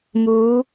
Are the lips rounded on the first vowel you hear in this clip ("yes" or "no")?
yes